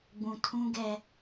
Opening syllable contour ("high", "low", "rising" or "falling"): low